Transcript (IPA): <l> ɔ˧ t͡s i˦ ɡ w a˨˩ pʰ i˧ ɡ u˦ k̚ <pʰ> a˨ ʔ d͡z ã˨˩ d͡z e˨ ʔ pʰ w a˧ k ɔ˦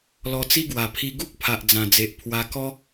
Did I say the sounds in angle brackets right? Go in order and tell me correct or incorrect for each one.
correct, correct

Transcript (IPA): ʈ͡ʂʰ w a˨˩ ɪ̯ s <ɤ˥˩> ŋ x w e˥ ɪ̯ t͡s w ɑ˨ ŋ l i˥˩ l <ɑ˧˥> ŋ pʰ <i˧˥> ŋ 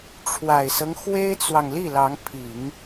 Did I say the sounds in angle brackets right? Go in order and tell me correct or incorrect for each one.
incorrect, correct, incorrect

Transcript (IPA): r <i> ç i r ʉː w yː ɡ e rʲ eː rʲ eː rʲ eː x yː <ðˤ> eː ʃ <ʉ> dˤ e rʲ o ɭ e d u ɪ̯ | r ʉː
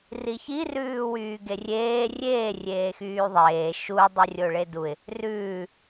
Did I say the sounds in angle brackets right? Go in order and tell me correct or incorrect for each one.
correct, correct, incorrect

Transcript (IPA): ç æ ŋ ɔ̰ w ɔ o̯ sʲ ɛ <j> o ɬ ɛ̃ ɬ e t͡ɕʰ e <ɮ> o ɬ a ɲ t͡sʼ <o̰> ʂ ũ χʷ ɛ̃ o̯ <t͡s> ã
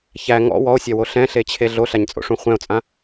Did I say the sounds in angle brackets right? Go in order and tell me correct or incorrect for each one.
incorrect, correct, correct, incorrect

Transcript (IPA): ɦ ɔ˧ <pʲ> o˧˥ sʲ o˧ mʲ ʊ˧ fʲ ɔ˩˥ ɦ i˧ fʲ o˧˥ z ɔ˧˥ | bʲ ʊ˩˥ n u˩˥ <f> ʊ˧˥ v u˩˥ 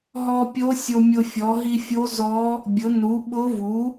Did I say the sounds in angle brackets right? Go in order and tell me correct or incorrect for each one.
correct, incorrect

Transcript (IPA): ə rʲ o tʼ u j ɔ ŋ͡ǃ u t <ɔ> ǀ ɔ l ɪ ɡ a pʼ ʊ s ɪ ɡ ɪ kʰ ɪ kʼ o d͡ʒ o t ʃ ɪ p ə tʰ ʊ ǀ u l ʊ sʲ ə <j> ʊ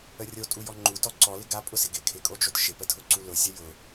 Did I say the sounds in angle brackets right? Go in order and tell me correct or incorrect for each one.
correct, correct

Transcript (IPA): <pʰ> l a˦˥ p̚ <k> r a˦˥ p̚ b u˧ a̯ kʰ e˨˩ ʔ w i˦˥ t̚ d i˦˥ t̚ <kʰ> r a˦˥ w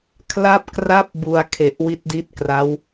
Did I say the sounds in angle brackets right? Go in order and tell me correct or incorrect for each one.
incorrect, correct, incorrect

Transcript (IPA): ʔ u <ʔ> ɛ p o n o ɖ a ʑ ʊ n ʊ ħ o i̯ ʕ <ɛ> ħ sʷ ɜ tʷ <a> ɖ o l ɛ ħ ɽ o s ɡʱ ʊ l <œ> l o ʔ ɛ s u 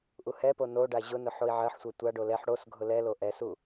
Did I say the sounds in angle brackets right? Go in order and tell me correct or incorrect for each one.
incorrect, incorrect, correct, incorrect

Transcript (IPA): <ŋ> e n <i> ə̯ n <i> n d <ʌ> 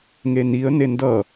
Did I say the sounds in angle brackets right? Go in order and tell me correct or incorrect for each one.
correct, correct, incorrect, correct

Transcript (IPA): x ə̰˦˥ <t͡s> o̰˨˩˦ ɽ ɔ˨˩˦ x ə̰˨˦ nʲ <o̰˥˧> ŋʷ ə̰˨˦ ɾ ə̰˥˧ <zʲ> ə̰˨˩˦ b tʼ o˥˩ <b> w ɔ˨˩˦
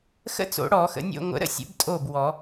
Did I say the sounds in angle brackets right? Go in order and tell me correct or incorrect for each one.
correct, correct, incorrect, correct

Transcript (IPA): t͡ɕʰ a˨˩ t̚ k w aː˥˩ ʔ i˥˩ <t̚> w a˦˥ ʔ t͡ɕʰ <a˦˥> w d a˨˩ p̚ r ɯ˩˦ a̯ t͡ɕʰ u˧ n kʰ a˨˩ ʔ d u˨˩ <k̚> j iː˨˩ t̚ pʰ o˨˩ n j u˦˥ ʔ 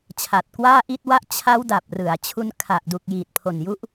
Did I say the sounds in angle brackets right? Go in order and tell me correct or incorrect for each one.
correct, correct, correct

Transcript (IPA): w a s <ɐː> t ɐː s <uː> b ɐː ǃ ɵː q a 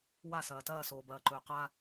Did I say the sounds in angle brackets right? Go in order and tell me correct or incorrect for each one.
correct, incorrect

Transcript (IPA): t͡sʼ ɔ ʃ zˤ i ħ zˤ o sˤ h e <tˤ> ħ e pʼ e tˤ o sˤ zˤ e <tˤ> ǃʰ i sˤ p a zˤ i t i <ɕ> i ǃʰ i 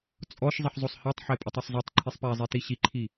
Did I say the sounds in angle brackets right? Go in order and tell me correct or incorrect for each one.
correct, correct, correct

